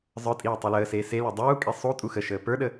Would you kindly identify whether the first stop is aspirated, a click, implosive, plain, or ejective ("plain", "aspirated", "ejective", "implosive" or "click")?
ejective